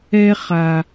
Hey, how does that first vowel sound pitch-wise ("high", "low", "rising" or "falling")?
high